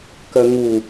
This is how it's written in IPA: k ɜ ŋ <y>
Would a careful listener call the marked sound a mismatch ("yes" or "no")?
yes